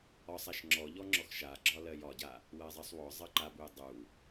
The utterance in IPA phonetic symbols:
ɒsˤ aʃŋ͡ǁɔʎɔ ŋ͡ǁɔxʃaɡ͡ǁɒ lɜjɒɟa | wɜzˤɜsˤwɔzˤɜ ǃabuj dˤu

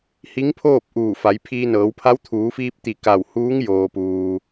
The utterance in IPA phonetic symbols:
hi˧˥ŋpʰoː˥˨p̚ ʔuː˧˩fa˩˧j pʰiː˧nɤː˩˧wpʰa˧˥w t̪ʰuː˩˧fiː˧p̚t̪i˧˩ ka˧˩w huː˧˥ŋjoː˩puː˩

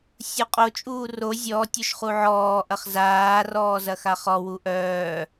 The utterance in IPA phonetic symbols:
sʲuqʼot͡ʃʼuː ro zʲɔːtʲoʃ χuʕɔː ʔɐχzaː rɔːzɐxaχɔ wuʔœː

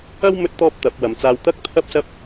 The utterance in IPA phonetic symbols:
ɐ˥w mɵ˥t̚t̪ɔː˥p̚t̪ɐ˨˥p̚ wɐ˨mt͡saː˧wt̪ɐ˥k̚ t̪ʰɐ˥p̚sɐ˥p̚

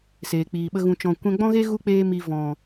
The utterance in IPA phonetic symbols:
seː˨k͡piː˨ɓə˦ɣũ˧ t͡ʃɔ̃˨ kʷɛ̃˧ɡ͡bɔ̃˦ɣe˦ ɣu˦k͡peː˧mi˨ vɔ̃˨

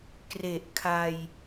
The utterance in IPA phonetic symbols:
kre˨˩ʔkʰa˧j

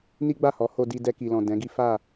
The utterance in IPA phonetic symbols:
ni˦ɡ͡ba˦˨hɔ˨˦ ho˧di˧ dɛ˧ki˨lɔ̃˨ dɛ̃˨˦ɡi˦ fa˦˨

